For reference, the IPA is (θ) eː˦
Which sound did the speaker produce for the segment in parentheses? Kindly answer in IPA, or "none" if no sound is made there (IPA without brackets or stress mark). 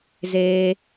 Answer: z